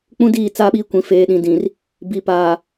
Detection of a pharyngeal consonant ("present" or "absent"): absent